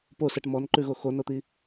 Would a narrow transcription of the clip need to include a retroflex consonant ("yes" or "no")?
yes